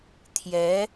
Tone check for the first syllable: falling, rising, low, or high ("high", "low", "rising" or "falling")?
rising